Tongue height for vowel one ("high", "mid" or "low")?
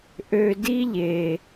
mid